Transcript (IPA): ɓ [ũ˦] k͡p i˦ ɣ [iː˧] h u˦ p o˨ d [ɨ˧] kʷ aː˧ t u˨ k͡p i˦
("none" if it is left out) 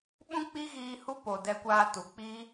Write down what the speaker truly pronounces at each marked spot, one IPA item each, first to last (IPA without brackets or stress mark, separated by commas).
ũ˦, iː˧, ɛ˧